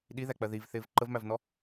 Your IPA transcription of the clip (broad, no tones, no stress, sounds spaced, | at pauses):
ɗ i ð æ k͡p ɜ ð i v θ ɪː v ǃ ə v m æ v n ɔ